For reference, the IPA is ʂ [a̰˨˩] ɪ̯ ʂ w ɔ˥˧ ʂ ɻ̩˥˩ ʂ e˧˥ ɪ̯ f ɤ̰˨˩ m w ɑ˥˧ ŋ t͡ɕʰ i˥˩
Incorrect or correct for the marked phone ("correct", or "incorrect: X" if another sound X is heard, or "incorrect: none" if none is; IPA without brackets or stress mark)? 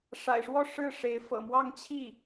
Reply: correct